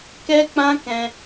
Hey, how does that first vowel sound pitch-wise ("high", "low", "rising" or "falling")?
high